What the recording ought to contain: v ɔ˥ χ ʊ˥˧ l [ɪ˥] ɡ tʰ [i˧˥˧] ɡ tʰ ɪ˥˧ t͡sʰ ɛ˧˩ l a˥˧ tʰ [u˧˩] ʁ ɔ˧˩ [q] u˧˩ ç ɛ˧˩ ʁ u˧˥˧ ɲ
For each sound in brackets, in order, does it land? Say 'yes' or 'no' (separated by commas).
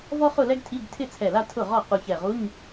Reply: no, yes, no, yes